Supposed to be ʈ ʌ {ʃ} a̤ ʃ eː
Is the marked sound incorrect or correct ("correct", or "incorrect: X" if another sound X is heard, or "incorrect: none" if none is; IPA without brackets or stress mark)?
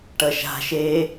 correct